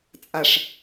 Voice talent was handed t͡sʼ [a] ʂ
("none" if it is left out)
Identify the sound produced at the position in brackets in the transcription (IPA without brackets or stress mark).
a